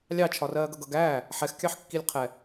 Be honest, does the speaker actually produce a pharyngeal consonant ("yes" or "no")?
yes